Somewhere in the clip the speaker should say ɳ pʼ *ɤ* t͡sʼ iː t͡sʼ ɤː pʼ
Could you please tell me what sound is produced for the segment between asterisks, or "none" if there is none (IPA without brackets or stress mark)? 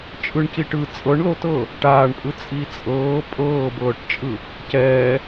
ɯ